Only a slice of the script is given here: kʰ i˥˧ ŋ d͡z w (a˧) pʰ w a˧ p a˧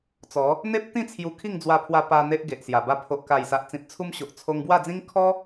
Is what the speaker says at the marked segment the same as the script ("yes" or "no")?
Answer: yes